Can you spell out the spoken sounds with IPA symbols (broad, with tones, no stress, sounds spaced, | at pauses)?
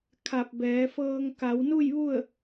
kʰ a˧˩ p̚ b ɛː˩˧ f ɤː˧ ŋ k a˩˧ w n u˥˨ j ʋ u˥˨ ə̯